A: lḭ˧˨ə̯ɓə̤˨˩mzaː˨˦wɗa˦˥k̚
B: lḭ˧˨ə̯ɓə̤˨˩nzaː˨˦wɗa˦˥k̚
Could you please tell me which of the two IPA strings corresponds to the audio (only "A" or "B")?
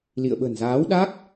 B